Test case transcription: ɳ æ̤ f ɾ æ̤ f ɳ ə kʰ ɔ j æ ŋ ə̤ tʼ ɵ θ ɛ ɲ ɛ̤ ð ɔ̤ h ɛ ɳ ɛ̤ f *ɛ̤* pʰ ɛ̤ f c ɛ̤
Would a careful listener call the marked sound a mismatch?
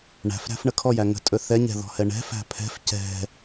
yes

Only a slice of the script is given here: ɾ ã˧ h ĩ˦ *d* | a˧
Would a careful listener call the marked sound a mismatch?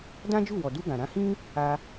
yes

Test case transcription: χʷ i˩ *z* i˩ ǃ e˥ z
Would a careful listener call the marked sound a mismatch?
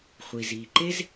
no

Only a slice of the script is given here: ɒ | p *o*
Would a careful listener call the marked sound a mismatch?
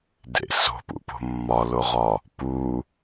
yes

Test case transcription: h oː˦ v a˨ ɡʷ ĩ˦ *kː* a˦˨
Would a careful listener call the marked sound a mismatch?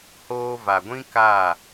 yes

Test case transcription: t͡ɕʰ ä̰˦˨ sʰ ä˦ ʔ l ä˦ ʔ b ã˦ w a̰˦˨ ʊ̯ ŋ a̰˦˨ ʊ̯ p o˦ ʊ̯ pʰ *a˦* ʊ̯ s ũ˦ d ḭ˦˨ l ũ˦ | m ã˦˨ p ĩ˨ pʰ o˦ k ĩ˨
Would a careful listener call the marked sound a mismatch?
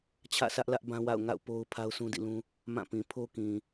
no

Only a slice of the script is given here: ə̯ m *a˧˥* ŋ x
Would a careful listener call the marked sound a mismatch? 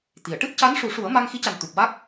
yes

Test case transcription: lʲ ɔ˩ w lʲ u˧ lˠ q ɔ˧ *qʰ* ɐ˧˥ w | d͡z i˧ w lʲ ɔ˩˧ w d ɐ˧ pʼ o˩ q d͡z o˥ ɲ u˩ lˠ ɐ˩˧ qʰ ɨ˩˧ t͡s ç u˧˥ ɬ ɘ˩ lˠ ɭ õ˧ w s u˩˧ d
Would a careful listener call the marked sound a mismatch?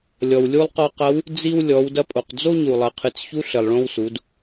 yes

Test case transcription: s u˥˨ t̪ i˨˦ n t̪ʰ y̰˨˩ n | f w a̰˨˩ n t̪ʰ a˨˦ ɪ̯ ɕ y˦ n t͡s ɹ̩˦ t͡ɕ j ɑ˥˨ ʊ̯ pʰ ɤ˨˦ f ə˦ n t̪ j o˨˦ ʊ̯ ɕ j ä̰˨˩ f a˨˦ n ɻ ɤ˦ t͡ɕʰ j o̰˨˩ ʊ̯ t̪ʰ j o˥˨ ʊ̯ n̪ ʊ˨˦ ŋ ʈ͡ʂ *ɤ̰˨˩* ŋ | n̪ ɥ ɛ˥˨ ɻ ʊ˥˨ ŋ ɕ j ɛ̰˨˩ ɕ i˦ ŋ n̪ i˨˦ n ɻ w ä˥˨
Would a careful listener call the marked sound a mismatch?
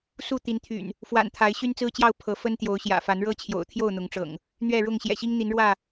no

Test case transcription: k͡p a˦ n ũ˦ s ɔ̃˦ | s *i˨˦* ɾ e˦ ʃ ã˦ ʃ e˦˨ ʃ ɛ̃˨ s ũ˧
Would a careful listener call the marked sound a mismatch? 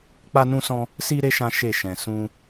yes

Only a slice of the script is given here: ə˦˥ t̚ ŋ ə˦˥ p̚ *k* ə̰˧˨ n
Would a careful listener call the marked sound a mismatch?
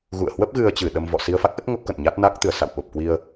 no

